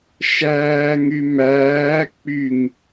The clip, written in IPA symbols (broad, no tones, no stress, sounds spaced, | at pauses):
ʃ æː ŋ y m æː k͡p y ŋ